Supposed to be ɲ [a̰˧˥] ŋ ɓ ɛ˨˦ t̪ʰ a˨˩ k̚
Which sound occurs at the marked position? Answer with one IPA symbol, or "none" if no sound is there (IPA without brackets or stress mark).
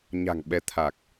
a̤˨˩